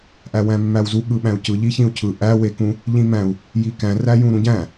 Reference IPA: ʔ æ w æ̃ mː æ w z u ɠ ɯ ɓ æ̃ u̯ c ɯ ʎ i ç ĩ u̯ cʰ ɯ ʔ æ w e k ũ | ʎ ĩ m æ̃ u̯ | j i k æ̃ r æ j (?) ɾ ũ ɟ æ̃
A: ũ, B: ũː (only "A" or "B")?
A